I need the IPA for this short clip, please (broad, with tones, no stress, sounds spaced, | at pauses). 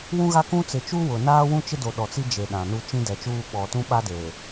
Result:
w ũ˦ ɣ a˦ k ũ˦ t͡s ɪ˨ t͡ʃ u˦ w ʊ˨ n aː˦ w ũ˦ t͡ʃ ɪ˦ d o˨ ɗ ɔ˨ t͡s i˦ d͡ʒ e˨ ɗ ã˨ n u˦ t͡ʃ ĩ˦ d ɛ˨ t͡ʃ uː˦ ɓ ɔ˨ t ũ˦ ɓ a˦ d e˨